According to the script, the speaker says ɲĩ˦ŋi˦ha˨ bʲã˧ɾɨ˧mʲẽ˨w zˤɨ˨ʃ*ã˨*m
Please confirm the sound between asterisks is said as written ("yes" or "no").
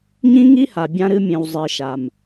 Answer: no